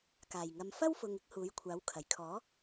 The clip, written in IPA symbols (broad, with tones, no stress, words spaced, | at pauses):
kaː˨˩j ŋɐ˨mfɐ˥wfʊ˨ŋ ɪ˨˥k̚ huː˨˥jkʷʰaː˨˥wkʰɐ˨˩j kʰɔː˨˥